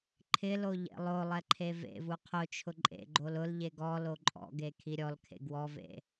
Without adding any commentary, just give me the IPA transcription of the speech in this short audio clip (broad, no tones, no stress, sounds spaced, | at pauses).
ǃʰ ɪ l o ʎ ḛ lˠ o lˠ ɛ ǃʰ e v ḛ v u qʰ ʊ t͡ʃʰ ʊ ǃʼ ḛ ɡ͡ǃ o l ʊ l ʎ e ɡ ɔ l o ǃʼ ɔ̰ ɡ e kʰ i ɾʲ ɔ l kʰ ḛ ɡ w ɔ v ḛ